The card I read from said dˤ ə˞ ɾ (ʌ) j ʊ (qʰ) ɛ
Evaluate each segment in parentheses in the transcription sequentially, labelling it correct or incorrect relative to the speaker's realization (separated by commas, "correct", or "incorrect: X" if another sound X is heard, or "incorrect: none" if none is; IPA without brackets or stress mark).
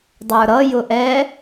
correct, incorrect: ʔ